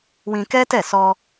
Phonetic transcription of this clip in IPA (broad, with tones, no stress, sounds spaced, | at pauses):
w ĩ˧ k ɛ˦ t ɛ˦˨ s ɔ˧